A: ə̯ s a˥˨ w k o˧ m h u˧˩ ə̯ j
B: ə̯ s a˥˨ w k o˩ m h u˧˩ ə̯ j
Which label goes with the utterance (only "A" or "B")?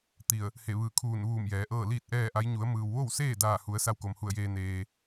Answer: B